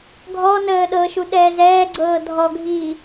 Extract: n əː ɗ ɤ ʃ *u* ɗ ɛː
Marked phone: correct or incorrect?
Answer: correct